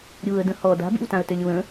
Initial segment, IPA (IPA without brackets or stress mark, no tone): ɾʲ